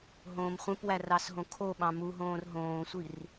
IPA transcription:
ɦ õː m χʷ ẽ p w æ r ɑ s ɦ õ kʰ o ɓ ɑ̃ m u ɦ õː r ɦ õː sʷ i r

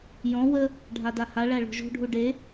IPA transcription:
j ɔ̃ w ə | ɖʱ a d a h a ɭ æ ɭ o̤ ʒ o̤ ɖʱ u ɖ e

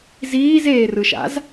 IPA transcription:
z iː z eː r ɯ ʃ a̰ z

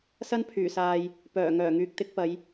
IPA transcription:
s ɐ˥ n pʰ yː˨˩ s aː˨ j | p œː˨˩ ŋ œː˨˩ ŋ yː˨ k̚ t̪ ɪ˥ k̚ p ɐ˨˧ j

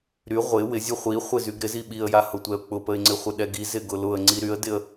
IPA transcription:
ɾ y ʁʷ ɪ w ɪ zʲ ʊ χʷ i χʷ ɪ z y ɡ ɾ ɪ z i ɓ i ə̯ j a h ʊ tʷ ɛ ʊ̯ k͡p ʊ p ə ɪ̯ ŋ͡ǀ ɪ χʷ ɪ ɗ ɛ ɡ i z ɪ ɡ ʊ l ʊ ə̯ ŋ͡ǀ i ɾ y ə̯ d ɪ ə̯

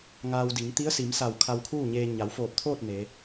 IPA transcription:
ŋ aː˧ w d i˩˧ ŋ t̪ i˧˥ ə̯ s i˩˧ m s a˧˩ w kʰ a˧ w kʰ uː˥˨ ɲ eː˧ ɲ a˩˧ w f oː˧˩ p̚ t̪ʰ oː˥˨ t̚ n e˩˧

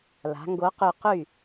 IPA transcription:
l a̤˩˧ ŋ ɡ o˨˥ q y˧˩ q y˥˩

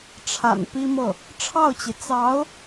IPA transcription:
ʈ͡ʂʰ a̰˨˩ n p i˥ m ɤ˥˩ | ʈ͡ʂʰ ɑ˥˩ ʊ̯ t͡ɕ i˩ t͡s ɑ˧˥ ʊ̯

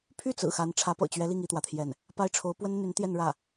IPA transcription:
pʰ y˥˩ t͡s ɹ̩˨˩ x a˧˥ n ʈ͡ʂʰ ä˧˥ p ɤ̰˨˩ t͡ɕ ɥ ɛ˧˥ l i˥˩ ŋ i˥ t̪ w ä˨ t̪ʰ j ɛ˥˩ n | p a˥ ɪ̯ ʈ͡ʂʰ o˧˥ ʊ̯ p w ə˥ n n̪ y˧˥ n t̪ j ɛ˥˧ n ɻ ä˥˩

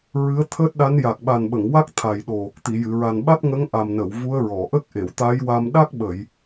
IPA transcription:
ɹ ɨ˧˥ ə̯ t̪ʰ əː˦˥ t̚ ɗ a˧˥ n j a˨˩ k̚ ɓ a˨˩ n ɓ ə˨˩˨ ŋ w a˦˥ k̚ t̪ʰ a˨˩ j ɗ o˨˩ | t̪ i˨˩˨ j ɨ˨˩˨ ɹ a˨˩ n ɓ a˦˥ t̚ ŋ ə˧˥ ŋ ʔ a˨˩ m n ə˨˩˨ w v u˧˥ ə̯ ɹ ɔ˨˩˨ ʔ ə˦˥ k̚ ʔ e˨˩˨ w t̪ a˧˥ j w a˧ m ɗ a˦˥ k̚ ɓ ə˨˩˨ j

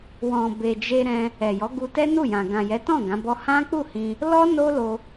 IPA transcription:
w ɔ̃˨ b e˨ d͡ʒ e˧ ɾ ɛ̃˧ | ɛ˨ j ɔ˨˦ ɡ u˧ t ɛ˦ n u˦˨ j ã˨ ɡ ã˨ j ɛ˨˦ t ɔ̃˦˨ ɡ ã˨˦ b ɔ˦ h ã˦ k͡p u˦˨ h ĩ˧ | l ɔ˦ n o˦ l o˧

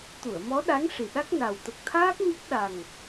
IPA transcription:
t̪ u˨˩˨ ə̯ m ɔ˧˥ ɗ a˧˥ ŋ ʂ i˨˩ ɗ a˦˥ k̚ n a˨˩ w t̪ ə˨˩ k̚ t̪ʰ aː˦˥ k̚ ɲ ə˦˥ k̚ ɗ a˨˩ ŋ

